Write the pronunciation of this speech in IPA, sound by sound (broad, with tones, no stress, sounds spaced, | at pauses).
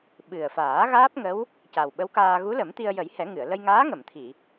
ɓ ɨ˨˩ ə̯ f aː˨˩˦ ɣ aː˦˥ p̚ ŋ ə˧˥ w | c a˨˩ w ɓ ə˧˥ w k aː˧ ɣ u˧˥ l ə˨˩˦ m t̪ i˧ ə̯ j ə˨˩˦ j h ɛ˨˩˦ ŋ ɨ˨˩˨ ə̯ l ə˧ j ŋ aː˧˥ ŋ ə˨˩˨ m t̪ʰ i˨˩˨